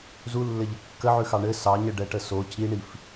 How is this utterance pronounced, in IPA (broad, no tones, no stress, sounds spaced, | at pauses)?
z u lː ɘ ʎ ə kː ə ʕ ʉ x ɑ ɳ ɘ s ɑ ɲ ə ɖ ɛ ʈ ə s o c i ɳ i f